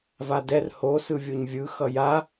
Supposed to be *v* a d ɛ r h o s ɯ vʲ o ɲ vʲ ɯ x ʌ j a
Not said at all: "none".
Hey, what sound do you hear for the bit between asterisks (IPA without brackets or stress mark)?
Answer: v